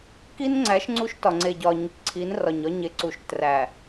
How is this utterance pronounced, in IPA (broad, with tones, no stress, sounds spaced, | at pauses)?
k i˦ n ŋ͡ǀ æ˨˦ ʃ ŋ͡ǀ u˦ ʃ t ɒ˨ ŋ͡ǀ e˨ ɟ ɒ˨ ɲ e˨ k ǀʰ i˨˦ n r ɒ˨ ɲ ɒ˦ ɲ e˨ ǀ u˨ ʃ t r æ˨